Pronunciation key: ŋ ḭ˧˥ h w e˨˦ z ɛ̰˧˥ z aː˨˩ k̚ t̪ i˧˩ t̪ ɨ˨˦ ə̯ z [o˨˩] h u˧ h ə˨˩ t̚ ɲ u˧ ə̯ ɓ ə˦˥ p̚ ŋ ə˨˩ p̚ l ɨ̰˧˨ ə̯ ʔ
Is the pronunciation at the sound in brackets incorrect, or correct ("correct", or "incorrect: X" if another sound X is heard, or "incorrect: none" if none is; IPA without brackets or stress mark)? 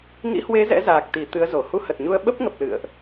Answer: incorrect: o˧˩